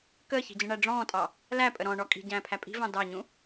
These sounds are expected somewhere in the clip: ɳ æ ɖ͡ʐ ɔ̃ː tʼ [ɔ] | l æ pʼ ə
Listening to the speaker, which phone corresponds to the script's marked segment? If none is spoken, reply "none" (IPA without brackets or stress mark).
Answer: ɑ